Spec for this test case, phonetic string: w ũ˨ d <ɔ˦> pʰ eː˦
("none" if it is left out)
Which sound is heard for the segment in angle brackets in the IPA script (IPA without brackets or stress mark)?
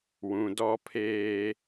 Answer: ɔ˦